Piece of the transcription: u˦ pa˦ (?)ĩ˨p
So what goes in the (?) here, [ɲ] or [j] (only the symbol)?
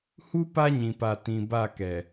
ɲ